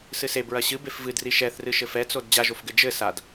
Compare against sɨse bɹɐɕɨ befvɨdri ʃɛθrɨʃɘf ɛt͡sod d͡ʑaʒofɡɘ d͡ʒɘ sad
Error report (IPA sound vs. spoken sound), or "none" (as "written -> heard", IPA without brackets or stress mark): none